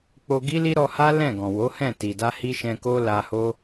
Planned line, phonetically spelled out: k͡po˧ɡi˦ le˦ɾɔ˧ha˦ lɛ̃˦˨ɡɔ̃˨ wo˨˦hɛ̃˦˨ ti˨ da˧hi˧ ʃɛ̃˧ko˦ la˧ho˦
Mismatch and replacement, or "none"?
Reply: e˦ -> i˦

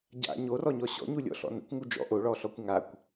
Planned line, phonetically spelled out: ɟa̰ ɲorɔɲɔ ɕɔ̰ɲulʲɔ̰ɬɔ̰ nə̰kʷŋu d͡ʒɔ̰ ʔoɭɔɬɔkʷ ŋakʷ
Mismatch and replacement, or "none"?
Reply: none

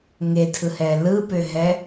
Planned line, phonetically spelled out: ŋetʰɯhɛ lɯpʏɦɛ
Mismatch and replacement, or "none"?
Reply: none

